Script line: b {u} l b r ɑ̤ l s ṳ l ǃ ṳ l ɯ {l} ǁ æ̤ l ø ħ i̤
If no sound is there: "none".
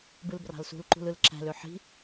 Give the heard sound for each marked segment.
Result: ɯ, l

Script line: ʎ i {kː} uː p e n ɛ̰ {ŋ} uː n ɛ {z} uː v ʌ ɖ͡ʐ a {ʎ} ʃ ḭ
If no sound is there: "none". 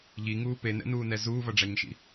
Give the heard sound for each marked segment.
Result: ŋ, n, z, ɲ

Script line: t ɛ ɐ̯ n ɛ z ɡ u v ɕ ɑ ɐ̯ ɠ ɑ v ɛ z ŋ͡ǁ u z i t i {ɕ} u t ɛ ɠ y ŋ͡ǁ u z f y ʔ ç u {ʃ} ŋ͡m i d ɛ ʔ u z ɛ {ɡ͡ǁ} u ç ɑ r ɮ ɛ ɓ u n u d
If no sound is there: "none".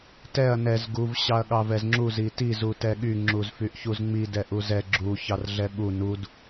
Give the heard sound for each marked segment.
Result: z, z, ɡ͡ǁ

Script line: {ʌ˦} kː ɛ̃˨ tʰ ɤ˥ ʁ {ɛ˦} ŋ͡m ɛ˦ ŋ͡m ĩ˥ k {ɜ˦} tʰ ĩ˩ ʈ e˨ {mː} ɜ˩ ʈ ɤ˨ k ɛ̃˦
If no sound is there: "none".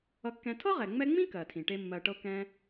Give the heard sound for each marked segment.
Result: ʌ˨, ɛ˩, ɜ˩, mː

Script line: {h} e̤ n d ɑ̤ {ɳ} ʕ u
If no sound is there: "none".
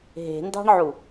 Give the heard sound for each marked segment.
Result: ɦ, ɳ

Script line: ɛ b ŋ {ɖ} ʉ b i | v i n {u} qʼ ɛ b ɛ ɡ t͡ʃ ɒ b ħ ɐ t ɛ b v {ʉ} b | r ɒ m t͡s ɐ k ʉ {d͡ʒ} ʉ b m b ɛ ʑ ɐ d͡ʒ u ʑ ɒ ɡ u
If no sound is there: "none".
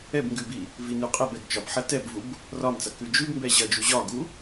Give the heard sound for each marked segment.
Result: ɡ, ʉ, u, d͡ʒ

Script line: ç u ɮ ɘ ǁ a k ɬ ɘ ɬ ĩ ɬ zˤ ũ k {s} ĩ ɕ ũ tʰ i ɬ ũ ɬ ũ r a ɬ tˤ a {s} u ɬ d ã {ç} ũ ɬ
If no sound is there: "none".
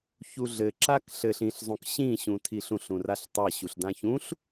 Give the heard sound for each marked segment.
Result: ɕ, ɕ, ç

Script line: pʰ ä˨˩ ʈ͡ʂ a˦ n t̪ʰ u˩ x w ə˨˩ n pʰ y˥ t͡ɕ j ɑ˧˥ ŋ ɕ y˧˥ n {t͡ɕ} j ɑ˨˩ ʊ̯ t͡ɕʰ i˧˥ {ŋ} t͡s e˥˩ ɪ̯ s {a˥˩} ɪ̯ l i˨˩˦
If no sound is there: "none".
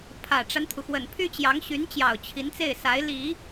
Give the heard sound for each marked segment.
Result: t͡ɕ, n, a˧˥

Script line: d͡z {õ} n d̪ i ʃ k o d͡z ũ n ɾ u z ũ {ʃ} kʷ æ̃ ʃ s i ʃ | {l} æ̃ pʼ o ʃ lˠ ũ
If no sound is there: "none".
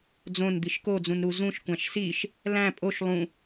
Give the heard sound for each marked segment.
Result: õ, ʃ, l

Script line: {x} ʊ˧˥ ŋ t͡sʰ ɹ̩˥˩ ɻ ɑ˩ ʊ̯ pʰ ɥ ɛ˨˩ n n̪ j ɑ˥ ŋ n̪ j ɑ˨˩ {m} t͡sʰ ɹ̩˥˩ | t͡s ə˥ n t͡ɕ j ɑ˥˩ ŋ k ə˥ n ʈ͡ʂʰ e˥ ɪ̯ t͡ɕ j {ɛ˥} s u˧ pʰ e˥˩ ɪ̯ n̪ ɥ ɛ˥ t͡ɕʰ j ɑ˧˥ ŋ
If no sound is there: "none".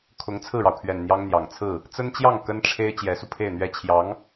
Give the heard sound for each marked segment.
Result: kʰ, ŋ, ɛ˧˥

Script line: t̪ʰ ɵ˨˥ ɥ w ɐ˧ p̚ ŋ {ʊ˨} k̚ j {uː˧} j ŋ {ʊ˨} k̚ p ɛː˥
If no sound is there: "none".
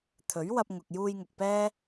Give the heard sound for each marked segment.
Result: ʊ˨, uː˧, ʊ˨

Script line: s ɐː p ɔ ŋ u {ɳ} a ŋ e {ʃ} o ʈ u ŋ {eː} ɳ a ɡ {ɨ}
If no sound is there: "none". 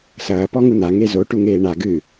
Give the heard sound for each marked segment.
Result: n̪, z, eː, ɨ

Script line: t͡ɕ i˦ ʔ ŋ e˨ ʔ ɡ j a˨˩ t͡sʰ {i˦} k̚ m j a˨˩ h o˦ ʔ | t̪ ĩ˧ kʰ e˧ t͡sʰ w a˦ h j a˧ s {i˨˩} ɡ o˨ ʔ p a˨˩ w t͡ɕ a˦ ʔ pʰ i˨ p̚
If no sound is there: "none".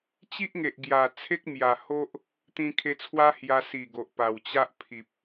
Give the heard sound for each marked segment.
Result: e˦, i˨˩

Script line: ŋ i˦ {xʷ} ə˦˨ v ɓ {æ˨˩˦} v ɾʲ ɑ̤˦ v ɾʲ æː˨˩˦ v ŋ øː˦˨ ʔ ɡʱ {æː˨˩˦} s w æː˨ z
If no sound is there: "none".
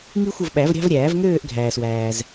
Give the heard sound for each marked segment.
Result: xʷ, æ˨˩˦, æː˨

